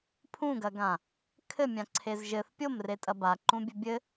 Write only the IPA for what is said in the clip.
pʰ ũ ɡ ɐ ɡ ã | kʰ ɘ mʲ ã ǀʰ e z ʒ ɘ θ pʲ o m r e tʼ ɐ b a ǃ ũ bʲ ɘ bʲ ɘ

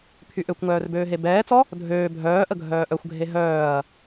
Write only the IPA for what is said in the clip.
pʰ y ʔ ø kʷ ŋ œː r b øː ɦ e b ɛː t͡s ɔ | dʱ øː bʱ œː ʔ ə ɡʱ œː ʔ œ xʷ ɡʱ e ɦ œː ɐ̯

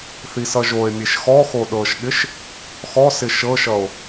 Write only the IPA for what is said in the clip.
θ i s ʌ ʒ o e̯ mʲ e ʃ x ɔ x o ɗ ɤ ʃ ɠ ɪ ʃ | x ɔ s ɪ ʃ ɤ ʃ ʌ o̯

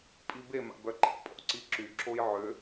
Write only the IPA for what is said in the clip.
pʼ i b e m a̰ b œ ǃ ḭ pʼ ɔ̰ ǀ i ǁ y ǁ o j ʕ ø

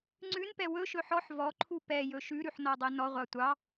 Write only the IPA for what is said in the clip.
ŋ͡ǀ ʉ n p ɛ w ɵ ʃ ɵ ħ ɔ ħ v ɔ ǃʰ u p ɛ j ɵ ʃ ʉ ɾ ʉ ħ n ɔ dˤ ɛ n ɔ ʁʷ ɑ tʷ ɑ

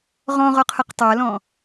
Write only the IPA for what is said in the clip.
ʁ ɔ̃ ʁ ɔ qʰ ɤ q tˤ a l ɔ̃

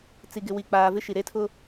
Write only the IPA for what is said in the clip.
t͡s i˨ ɡ ɪ˨ w i˨ k͡p aː˨ v ɪ˦ ʃ i˨ ɾ e˦ tʰ ʊ˦

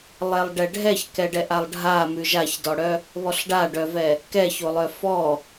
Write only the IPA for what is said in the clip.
lˠ ɛ lˠ ɖ ɛ ɖʱ ɛ ç k ɛ ɖ ɛ ʔ a lˠ ɖʱ a m ʉ ʒ a ç d ɔ ɽ œ | β ɔ ɬ ɖ a ɖ œ v ɛ | k ɛ ç o lˠ œ f ɔ

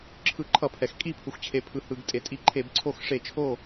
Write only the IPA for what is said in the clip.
ǁʰ ɯ˧˩˧ ǃʰ ʌ˧˩˧ pʰ ɛ˩ x kʼ i˥˩ pʰ u˩ x t͡ɕʰ e˩ pʰ ɯ˩ h ɯ˩ ɡ tʼ e˩ tʼ i˧˩˧ ǃʰ e˧˩˧ b ǀʰ o˥˩ x ʂ e˧˩˧ t͡ʃʰ o˥˩

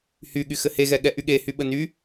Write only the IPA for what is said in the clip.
h y ɠ y x ɘ h e ɣ ɛ ɠ ɛ ʔ y ɠ e h y ɓ ə n y

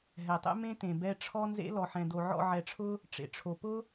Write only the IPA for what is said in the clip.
ɦ ɛ˨ tˤ ɛ̰˦ m ẽ˦ t ẽ˨ b ɛ˦ ʈ͡ʂʰ ɔ˦ n z ḛ˦ l ɔ˨ ħ ɛ̃˨ d o˨ ʕ ɔ̰˦˨ ʕ ɛ˨ ʈ͡ʂʰ ʊ˦ | ʈ͡ʂ ḛ˨ ʈ͡ʂʰ o˨ p ʊ˦

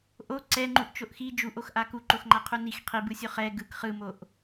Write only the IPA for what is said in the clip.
ʔ o ǀ ɛ ŋ͡ǃ u ʔ t͡ʃ o ʔ x i d͡ʒ u ʔ o x ʔ a k u ǃ o x ŋ͡ǃ a qʰ u n i x qʰ i b ɯ sʲ o χ ɛ ɡ ɯ k χ ɯ m o ʔ

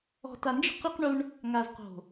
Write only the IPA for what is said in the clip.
ɔ̤˨ t a˨ n d͡ʒ i̤˦ q i˦ q ɳ u˦ ɳ | ŋ a˨ z q o̤˨

